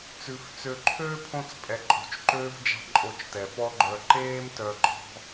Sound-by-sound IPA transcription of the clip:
t͡s ʉ˨ f t͡s ø˧ ǃʰ øː˦ pʰ õ˧ t͡s pʼ ɛ˨ ǃʼ o̤˨ t͡ʃ ǃ øː˦ v d͡ʒ ɑ̤˦ ǃʼ o˧ t͡ʃ t ɛ˨ f ɔ˦ ɡ͡ǃ œ˧ ǃ eː˦ m t œ˧ ɡ͡ǃ ɔ̤˦

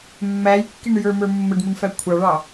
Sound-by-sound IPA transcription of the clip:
mː æ j kː i ɳ j ə˞ m ə˞ mː ə ɖ m u ɳ f æ kʷʰ ɑ ɭ ɑ

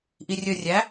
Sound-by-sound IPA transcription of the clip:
ʔ i rʲ ɵ rʲ æ

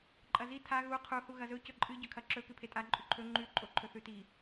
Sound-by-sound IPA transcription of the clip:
ǃʼ ɐ z i tʰ a ɣ u qʰ u h u ɣ ɐ z ɵ c ɵ ǃʼ ɨ ɟ ɵ kʰ ɐ ǁ ɵ k ɨ pʰ e tʼ a ǃʼ ʉ ǃʰ ɵ ŋ͡ǃ ʉ ǃʼ o ǃʰ ɵ θ ʉ t i

